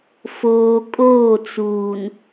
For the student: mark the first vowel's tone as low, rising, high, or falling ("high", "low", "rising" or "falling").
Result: low